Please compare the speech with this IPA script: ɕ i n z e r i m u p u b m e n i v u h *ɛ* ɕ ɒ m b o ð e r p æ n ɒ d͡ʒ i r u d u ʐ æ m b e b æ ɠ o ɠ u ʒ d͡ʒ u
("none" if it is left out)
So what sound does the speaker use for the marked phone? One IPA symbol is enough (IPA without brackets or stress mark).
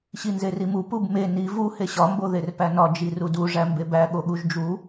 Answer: e